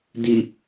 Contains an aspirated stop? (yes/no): no